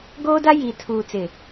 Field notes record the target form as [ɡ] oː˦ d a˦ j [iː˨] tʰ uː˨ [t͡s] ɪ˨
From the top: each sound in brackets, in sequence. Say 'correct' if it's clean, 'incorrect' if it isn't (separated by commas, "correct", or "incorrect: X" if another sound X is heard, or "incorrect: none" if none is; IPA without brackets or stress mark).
correct, correct, correct